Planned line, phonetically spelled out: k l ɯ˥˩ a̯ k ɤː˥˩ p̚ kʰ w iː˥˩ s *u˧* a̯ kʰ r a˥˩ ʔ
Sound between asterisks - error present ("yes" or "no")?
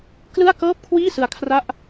yes